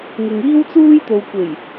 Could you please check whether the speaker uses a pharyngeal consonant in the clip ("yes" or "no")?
no